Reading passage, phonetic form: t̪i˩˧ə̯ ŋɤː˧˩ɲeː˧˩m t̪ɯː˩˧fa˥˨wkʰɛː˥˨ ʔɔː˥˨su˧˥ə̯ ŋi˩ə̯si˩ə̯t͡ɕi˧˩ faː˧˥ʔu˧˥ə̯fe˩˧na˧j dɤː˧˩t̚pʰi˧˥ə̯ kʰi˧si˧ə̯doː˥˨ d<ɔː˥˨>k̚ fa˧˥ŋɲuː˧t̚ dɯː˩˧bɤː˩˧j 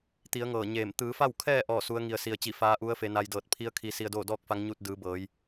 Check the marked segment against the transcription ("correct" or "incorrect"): correct